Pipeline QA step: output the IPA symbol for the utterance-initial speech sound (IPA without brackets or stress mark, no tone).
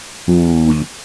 uː